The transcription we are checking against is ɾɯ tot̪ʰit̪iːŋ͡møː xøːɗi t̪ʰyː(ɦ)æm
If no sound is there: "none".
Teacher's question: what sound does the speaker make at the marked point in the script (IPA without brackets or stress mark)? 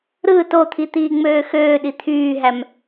ɦ